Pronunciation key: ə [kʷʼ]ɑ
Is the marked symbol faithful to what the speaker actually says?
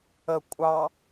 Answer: yes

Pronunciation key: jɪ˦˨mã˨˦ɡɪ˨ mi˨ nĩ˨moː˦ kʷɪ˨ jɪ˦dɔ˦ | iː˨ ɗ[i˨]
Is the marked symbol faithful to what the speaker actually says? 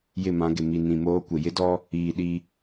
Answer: no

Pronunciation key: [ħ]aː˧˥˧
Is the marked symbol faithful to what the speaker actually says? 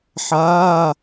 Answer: yes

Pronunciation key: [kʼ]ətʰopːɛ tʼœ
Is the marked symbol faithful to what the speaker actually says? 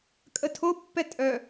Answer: yes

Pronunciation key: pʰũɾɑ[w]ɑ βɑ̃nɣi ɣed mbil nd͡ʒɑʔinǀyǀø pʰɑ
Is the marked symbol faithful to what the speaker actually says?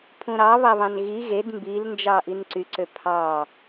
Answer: no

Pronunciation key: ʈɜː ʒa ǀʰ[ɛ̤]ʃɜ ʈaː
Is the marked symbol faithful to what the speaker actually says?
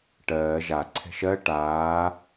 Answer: yes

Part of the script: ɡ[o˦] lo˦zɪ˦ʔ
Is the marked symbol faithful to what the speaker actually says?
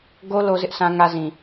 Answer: yes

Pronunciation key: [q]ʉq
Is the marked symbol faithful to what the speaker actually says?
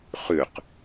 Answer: no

